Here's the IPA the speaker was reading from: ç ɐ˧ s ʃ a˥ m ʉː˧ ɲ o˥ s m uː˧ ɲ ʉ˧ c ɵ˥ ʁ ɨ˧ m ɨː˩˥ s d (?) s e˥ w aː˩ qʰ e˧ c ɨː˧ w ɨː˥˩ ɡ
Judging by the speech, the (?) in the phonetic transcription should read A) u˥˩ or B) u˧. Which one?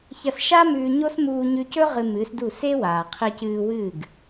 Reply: A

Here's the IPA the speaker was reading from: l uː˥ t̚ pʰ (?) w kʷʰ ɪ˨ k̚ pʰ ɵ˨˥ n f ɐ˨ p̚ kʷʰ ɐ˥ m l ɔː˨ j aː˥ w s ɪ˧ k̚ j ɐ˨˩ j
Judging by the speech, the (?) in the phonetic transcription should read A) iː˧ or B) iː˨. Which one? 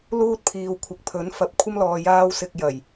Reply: B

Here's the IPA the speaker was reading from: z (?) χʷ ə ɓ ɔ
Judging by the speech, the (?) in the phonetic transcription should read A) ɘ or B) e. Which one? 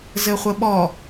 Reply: A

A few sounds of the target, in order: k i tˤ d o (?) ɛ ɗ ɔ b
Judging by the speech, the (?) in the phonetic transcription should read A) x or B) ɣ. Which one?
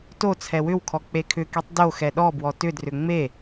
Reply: A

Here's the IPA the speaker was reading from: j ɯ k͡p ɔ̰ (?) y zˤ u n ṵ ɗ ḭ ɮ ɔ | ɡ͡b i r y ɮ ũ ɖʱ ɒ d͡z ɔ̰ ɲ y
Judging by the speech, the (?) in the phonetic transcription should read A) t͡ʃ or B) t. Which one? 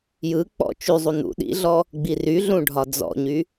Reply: A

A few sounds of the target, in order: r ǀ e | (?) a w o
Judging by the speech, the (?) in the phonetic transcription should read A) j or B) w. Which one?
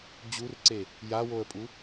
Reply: A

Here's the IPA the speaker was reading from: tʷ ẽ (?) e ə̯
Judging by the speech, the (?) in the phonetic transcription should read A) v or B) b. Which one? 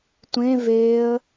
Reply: A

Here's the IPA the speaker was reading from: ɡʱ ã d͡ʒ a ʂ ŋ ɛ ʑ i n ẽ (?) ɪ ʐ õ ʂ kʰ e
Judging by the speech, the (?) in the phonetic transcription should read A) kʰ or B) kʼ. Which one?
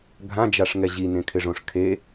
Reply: A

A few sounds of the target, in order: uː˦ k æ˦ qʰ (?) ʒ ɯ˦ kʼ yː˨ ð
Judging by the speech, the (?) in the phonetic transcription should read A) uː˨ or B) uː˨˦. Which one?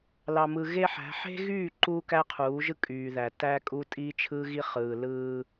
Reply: B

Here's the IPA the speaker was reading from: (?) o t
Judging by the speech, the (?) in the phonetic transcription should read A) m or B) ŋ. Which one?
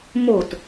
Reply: A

